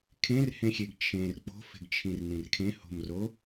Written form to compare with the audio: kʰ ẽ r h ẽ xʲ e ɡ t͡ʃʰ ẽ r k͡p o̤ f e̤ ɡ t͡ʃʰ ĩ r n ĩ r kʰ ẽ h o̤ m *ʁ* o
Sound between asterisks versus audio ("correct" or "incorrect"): incorrect